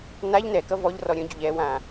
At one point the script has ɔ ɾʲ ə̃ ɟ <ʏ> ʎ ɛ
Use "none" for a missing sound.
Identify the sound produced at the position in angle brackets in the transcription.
ʏ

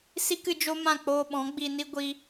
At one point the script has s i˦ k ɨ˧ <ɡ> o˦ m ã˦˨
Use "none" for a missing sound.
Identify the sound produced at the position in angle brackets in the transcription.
d͡ʒ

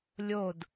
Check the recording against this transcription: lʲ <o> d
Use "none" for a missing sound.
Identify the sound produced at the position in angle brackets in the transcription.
o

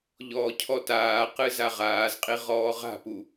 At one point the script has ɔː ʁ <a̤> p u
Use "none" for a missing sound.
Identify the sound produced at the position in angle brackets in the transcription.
a̤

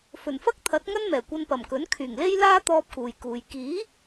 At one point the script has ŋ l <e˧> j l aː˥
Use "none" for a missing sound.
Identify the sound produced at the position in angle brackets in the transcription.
e˥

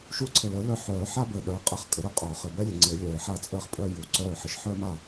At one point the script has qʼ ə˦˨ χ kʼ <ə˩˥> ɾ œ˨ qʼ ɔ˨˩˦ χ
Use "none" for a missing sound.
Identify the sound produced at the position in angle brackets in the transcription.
ə˩˥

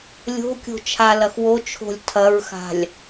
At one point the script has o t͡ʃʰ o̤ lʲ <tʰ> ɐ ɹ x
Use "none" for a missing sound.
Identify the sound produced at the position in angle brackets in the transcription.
tʰ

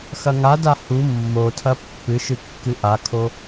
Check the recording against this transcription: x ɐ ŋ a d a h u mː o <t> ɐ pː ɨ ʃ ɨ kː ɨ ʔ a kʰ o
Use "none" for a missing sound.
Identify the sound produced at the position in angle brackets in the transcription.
tʰ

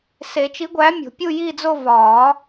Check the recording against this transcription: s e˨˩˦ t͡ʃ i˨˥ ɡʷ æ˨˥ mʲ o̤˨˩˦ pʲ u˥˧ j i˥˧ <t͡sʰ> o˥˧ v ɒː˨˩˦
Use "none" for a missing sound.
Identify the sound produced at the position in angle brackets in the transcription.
d͡z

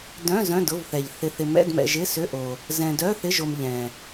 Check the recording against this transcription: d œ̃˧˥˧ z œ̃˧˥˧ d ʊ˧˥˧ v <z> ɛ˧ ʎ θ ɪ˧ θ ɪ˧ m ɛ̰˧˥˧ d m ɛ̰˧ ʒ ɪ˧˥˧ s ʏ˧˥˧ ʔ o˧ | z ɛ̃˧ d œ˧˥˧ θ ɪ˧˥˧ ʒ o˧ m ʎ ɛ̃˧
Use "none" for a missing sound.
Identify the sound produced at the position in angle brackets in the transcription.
θ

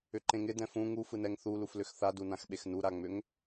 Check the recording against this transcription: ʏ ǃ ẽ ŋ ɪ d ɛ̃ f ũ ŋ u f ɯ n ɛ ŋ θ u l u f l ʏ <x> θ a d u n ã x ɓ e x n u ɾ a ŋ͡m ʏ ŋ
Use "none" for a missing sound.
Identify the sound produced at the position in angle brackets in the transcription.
x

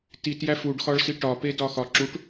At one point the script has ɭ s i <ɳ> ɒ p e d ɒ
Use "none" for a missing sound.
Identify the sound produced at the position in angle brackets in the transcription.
ʈ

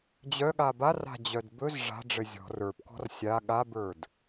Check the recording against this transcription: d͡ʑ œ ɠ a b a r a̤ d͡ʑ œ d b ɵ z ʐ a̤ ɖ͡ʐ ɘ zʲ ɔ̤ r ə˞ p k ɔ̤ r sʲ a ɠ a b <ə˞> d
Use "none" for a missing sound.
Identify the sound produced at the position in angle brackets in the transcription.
ə˞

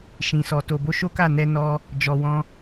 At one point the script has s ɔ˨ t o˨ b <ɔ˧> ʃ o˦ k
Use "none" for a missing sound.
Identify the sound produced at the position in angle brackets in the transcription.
o˧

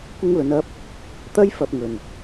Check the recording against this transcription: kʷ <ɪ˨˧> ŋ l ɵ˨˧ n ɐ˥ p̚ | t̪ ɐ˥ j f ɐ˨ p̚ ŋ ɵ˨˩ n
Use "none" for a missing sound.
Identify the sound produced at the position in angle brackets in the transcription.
ɪ˥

